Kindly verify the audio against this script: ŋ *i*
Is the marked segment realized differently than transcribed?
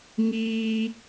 yes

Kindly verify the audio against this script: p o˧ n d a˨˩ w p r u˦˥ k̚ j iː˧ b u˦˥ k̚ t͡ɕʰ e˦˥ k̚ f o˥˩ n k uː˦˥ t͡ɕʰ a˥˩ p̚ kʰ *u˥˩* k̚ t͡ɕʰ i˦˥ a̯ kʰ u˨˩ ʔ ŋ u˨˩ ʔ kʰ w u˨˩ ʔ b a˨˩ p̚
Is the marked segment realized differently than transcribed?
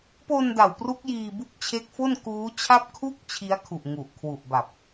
no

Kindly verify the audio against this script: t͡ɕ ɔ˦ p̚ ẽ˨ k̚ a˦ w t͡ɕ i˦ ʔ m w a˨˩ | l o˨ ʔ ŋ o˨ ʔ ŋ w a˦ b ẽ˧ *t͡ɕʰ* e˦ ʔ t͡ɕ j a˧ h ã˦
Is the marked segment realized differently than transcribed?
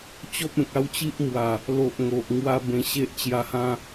yes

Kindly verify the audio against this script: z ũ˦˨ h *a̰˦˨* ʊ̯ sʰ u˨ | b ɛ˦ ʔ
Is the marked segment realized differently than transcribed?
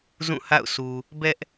no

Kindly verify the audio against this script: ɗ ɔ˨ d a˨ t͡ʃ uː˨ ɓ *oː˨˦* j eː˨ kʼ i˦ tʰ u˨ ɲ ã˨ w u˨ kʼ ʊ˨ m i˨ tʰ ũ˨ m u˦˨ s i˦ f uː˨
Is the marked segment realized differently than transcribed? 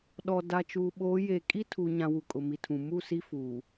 no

